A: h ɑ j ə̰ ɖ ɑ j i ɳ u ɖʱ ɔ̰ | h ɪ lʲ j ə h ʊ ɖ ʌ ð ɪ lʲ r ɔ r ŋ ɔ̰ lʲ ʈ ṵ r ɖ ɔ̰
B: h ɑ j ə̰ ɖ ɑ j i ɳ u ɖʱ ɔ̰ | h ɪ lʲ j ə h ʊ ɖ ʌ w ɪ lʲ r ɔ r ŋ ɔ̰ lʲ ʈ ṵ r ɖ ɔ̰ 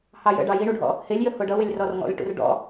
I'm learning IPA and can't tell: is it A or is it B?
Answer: B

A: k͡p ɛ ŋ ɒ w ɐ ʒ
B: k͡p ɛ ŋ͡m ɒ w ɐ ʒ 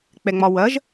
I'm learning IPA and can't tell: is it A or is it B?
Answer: B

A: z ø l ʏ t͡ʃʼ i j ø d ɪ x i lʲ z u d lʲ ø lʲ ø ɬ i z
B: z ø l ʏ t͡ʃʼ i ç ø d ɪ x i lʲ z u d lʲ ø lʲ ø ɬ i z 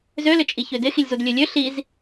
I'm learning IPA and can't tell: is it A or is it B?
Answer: B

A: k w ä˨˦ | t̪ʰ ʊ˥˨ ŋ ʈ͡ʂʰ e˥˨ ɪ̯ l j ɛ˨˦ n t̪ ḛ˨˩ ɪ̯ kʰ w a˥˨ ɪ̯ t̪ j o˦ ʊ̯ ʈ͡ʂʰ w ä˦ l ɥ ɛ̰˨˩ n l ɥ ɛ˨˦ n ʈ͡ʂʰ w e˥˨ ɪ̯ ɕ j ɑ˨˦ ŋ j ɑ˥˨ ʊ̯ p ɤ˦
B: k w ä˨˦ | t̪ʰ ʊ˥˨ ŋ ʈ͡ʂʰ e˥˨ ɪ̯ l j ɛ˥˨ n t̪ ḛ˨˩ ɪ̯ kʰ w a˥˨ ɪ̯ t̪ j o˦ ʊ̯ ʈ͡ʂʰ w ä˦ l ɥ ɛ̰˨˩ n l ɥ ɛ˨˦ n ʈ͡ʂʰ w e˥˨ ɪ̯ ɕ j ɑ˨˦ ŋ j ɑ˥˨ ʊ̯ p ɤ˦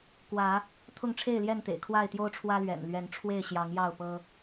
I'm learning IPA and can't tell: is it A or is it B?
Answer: B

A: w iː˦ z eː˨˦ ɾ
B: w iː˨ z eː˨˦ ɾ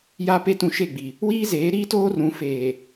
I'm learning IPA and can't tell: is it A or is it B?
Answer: A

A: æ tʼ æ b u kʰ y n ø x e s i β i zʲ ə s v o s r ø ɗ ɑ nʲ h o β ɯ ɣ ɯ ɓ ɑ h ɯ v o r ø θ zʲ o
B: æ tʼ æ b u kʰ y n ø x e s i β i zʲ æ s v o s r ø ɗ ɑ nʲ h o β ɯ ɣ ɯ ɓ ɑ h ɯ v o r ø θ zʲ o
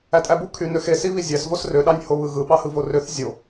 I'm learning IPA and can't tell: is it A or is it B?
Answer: B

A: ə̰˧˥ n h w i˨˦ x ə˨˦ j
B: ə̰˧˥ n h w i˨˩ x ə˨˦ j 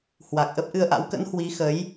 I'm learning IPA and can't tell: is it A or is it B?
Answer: A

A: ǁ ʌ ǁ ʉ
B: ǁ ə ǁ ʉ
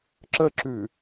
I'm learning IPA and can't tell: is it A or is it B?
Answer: B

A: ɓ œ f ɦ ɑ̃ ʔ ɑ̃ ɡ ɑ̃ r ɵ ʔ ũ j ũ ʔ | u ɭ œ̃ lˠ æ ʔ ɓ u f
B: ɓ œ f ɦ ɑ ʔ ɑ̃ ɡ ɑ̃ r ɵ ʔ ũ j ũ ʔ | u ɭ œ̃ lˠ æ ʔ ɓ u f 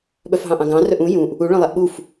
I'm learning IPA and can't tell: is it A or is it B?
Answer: A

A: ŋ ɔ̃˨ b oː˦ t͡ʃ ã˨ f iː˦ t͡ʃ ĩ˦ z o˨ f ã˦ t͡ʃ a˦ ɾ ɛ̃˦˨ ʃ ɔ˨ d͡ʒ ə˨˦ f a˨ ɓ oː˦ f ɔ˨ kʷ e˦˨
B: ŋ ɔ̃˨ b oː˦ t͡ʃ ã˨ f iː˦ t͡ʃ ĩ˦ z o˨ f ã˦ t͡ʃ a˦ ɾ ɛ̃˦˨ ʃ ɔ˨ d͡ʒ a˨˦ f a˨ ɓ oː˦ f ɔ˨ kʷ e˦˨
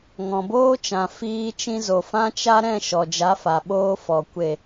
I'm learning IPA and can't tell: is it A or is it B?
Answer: B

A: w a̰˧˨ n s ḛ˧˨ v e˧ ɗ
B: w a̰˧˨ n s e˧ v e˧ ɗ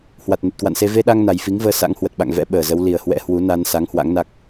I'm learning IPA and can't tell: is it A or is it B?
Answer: B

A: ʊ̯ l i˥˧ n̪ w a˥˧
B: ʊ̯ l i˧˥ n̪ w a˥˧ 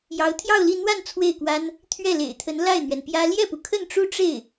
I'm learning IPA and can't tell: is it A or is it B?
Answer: A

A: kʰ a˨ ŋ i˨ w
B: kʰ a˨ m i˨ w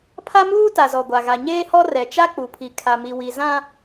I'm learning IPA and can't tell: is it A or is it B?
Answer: B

